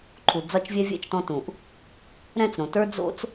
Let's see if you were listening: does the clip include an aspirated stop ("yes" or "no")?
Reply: yes